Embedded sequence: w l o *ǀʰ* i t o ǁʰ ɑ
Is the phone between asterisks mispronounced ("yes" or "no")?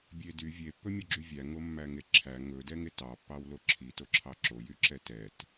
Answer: yes